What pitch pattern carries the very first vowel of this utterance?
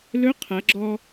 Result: rising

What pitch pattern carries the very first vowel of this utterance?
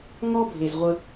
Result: high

